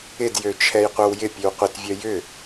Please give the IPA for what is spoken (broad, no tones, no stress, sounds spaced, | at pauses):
ɪ d j ø t͡ʃʰ ɛ j qʷ œ w j ɪ pʲ ø w qʷ ɪ t vʲ œ j ʏ